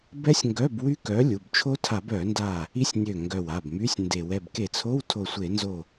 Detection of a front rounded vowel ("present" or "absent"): present